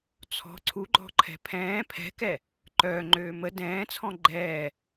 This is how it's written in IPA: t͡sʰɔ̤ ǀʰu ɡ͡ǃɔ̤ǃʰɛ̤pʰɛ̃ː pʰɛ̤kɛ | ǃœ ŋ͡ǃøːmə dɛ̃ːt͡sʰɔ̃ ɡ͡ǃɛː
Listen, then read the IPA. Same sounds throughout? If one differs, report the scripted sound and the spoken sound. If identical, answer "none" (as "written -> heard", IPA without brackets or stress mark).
none